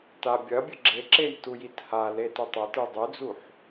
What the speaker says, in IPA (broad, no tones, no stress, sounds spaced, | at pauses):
t a bʲ ɐ bʲ ɨ ɡ͡ǁ e ǁ e j t u j i t h a l e t ɨ tˤ ɵ t ɨ dˤ ʉ d͡z u ħ